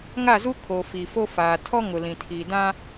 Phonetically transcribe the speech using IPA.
ŋa˦˨zu˦ kʰo˨fi˨fo˦faː˨ tʰɔ˦ŋʊ˨lĩ˨ tʰi˨dã˦

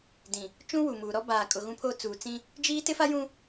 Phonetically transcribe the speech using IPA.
dĩ˨ | t͡ʃũ˦ wu˨muː˨ɾɔ˦ baː˨kʼʊ˨ ɣũ˦pʰoː˦ t͡suː˨t͡sĩ˦ | d͡ʒiː˦ tɪ˦fa˦jũ˦

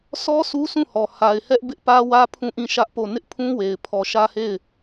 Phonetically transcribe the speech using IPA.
sʰɔ˦ sʰu˦sʰũ˦˨hɔ˨ ha˨ɪ̯hɛ˦ʔ bɪ˦ʔpä˦wä˦ pʰũ˦˨ʔĩ˦˨ʃä˦ʔpo˦˨ nɪ˦ʔpʰũ˦we˨ɪ̯ pʰɔ˨ʃä˦he˦˨ɪ̯

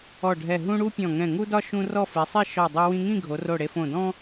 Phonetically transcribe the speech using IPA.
ɔ˧˩ɖʱɛ˧˩ ɦũ˥ ɽu˥pʲɔ̃˧˩ ŋɛ̃˧˩ŋu˥dɒ˥ ʃũ˥ rɔ˥˧fi˩˧sˤi˥˧ ʃɔ˧˩ dˤe˧wĩ˧ŋĩ˥˧ ɡʱo˩˧ro˧˩ɽe˧fõ˧˩ dɔ̃˥

